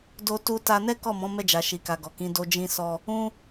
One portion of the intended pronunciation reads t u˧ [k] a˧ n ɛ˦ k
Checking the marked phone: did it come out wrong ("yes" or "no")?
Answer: yes